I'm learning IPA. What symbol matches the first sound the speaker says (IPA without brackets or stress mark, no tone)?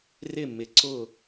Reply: r